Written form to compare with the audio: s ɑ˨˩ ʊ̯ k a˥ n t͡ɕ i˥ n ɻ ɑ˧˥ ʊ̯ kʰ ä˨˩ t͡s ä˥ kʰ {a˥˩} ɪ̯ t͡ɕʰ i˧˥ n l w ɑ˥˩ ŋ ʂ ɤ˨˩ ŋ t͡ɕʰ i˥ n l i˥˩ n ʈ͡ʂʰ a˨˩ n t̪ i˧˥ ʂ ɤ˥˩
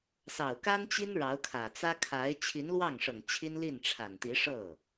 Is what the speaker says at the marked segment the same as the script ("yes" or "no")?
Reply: no